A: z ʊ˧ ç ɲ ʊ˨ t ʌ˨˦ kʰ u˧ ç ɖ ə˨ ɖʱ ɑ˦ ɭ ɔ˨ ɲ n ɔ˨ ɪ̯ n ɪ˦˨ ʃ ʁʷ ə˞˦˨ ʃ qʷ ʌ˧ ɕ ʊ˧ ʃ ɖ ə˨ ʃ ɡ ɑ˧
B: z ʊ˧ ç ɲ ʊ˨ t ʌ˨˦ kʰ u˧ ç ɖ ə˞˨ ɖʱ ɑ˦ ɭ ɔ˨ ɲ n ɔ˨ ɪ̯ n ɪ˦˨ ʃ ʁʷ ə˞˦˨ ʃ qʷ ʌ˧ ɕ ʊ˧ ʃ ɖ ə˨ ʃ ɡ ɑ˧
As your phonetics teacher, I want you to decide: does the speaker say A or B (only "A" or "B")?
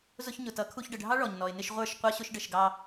A